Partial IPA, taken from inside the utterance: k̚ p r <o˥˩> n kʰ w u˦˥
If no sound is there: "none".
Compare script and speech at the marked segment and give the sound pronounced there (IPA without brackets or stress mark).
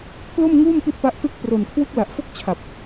o˨˩